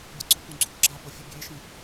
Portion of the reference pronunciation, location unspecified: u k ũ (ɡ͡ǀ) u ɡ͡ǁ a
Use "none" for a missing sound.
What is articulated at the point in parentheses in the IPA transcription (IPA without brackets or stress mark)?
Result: ɡ͡ǀ